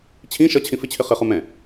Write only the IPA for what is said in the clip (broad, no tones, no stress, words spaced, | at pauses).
t͡ɕʰĩ ʃʌt͡ɕʰĩ fɪt͡ɕʰɪ χɪχu mɛ̃